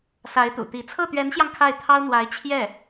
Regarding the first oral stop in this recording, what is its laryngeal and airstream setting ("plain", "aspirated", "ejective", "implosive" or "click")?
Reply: plain